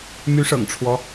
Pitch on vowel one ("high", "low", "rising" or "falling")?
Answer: rising